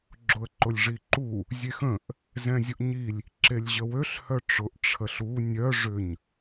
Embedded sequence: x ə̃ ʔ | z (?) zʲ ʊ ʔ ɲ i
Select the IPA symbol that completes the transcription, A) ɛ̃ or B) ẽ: A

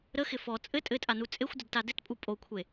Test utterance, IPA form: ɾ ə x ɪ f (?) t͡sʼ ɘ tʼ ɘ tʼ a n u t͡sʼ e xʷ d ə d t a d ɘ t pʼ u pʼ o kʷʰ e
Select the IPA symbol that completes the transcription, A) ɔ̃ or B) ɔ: B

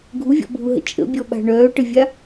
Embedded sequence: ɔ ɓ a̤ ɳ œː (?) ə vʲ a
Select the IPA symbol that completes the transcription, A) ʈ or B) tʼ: A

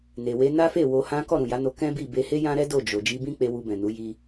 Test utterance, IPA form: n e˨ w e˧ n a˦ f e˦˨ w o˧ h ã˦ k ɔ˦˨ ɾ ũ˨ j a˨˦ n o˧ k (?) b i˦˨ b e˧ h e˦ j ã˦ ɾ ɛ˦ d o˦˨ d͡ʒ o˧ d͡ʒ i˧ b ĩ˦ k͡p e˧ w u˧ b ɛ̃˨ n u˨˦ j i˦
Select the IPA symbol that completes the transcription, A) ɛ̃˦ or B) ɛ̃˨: A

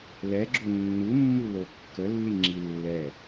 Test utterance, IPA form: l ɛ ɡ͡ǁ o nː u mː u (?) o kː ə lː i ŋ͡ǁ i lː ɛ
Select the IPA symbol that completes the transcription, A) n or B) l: B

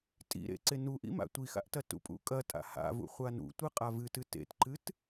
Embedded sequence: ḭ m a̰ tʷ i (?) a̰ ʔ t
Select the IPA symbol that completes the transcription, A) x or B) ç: A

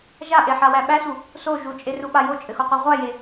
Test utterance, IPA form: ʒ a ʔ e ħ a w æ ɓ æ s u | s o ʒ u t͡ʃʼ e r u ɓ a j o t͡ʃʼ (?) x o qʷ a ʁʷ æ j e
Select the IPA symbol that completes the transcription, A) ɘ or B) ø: A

